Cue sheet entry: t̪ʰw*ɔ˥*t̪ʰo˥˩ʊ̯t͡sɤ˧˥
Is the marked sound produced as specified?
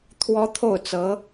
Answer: yes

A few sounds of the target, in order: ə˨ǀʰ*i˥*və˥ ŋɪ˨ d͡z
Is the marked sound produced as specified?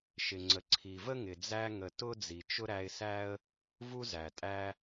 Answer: no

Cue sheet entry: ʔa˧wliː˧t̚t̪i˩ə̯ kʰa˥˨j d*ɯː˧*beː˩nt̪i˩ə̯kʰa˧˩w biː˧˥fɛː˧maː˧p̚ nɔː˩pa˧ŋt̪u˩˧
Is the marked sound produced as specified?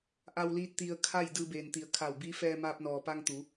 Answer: yes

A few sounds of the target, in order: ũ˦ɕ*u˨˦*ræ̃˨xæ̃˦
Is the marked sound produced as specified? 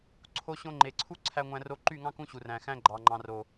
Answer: no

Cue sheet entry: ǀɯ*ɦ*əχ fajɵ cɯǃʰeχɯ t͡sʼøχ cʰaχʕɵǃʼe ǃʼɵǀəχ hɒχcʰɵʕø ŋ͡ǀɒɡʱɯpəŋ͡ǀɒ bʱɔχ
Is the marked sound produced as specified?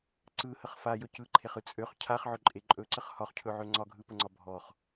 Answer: no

